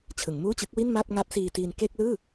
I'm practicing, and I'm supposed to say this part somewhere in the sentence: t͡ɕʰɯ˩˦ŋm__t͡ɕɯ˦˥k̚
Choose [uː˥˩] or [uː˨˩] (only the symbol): uː˥˩